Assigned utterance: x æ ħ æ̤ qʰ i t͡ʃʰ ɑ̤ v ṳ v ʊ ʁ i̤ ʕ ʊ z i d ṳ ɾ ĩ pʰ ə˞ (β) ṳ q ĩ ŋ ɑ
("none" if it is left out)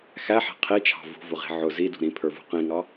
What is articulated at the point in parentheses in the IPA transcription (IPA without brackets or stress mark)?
v